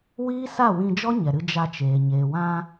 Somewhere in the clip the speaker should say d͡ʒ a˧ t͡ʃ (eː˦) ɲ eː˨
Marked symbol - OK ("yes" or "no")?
no